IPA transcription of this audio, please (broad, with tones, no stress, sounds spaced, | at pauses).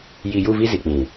j i˨ j u˦˨ v i˦ z i˨ k͡p ĩ˨